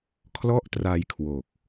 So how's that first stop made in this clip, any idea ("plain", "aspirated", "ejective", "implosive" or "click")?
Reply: aspirated